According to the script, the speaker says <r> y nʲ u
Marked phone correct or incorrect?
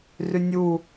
correct